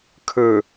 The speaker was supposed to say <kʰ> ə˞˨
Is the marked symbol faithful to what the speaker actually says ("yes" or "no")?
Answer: yes